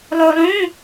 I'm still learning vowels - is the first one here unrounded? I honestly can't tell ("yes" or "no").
no